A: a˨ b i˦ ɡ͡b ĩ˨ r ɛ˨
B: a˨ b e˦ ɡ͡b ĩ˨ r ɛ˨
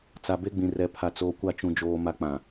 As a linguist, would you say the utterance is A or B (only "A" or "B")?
B